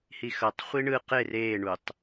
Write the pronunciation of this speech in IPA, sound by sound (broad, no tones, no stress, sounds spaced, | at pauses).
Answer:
h i x ʌ tˤ χʷ i ɳ ɯ q e r eː ɳ u tˤ